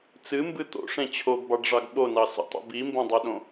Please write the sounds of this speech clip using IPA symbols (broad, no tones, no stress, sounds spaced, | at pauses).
t͡s ɨ m b ɨ t̪ o̰ ʂ ẽ t͡ɕʰ o ɡ b ɑ ɖ ʐ ɑ ɡ ɓ o n ɑ s ə̰ tˤ ə̰ b i m b õ dˤ ɛ ɗ õ